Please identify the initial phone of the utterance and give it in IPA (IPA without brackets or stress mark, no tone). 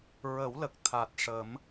ɹ